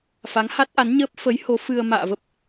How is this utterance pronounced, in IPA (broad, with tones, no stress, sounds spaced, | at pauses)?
f a˨˦ ŋ h a˦˥ t̚ ʔ a˨˦ n ɲ əː˦˥ p̚ f ə˨˦ j h o˨˦ f ɨ˧ ə̯ m a̰ː˧˨ v ə˦˥ p̚